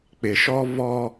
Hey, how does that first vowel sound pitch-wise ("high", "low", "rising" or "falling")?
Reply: low